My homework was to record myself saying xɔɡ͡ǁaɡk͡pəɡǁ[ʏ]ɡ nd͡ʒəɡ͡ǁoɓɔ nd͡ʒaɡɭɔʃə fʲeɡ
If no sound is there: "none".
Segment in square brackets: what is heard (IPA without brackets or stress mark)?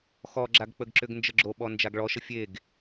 ʏ